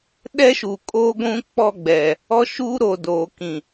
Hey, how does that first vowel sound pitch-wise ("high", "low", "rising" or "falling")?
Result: high